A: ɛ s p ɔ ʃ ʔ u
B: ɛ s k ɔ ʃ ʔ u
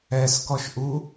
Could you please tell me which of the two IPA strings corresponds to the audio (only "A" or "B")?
B